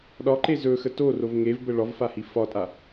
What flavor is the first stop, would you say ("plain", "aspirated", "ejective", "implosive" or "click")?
implosive